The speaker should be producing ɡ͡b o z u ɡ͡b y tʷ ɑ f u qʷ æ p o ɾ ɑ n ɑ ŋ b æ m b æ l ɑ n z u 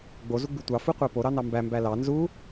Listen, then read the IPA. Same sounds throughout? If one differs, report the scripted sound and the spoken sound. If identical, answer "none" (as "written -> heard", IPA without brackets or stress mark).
ŋ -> m